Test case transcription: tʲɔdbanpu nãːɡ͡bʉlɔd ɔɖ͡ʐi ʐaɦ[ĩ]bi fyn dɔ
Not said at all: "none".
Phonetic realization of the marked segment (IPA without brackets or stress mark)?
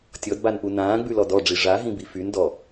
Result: ĩ